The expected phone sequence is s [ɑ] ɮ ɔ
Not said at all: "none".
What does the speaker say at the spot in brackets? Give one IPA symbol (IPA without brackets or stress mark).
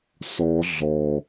ɔ